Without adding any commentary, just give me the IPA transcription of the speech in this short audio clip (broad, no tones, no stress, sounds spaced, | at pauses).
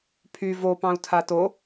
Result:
pʰ y v o p ɑ̃ u̯ tʰ a t o